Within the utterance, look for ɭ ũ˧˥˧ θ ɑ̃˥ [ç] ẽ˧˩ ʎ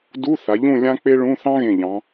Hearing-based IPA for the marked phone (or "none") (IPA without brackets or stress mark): ɣ